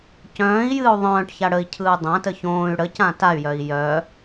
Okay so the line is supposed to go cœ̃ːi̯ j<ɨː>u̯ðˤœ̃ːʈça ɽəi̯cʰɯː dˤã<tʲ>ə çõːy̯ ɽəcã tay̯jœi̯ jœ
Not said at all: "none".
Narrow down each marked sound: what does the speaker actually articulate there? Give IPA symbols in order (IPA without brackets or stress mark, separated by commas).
ɨː, t